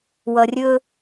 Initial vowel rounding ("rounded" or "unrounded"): unrounded